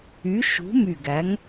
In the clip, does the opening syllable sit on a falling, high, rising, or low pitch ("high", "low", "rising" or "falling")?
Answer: rising